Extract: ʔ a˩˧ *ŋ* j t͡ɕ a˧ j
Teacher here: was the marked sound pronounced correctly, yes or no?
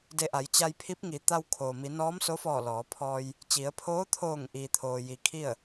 no